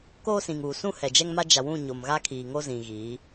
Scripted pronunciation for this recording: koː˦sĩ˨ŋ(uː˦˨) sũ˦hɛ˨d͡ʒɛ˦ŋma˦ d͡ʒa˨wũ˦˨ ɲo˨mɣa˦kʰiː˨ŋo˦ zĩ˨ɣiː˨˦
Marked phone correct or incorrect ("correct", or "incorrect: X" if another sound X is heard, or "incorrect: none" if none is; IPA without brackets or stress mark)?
incorrect: uː˨